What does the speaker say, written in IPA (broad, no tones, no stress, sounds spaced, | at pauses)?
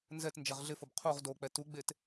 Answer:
n z ɛ t n d͡ʒ ɛ ʁ ɮ ɪ f ʊ b qʰ u ʁ d o k͡p ɛ t u ɡ͡b e t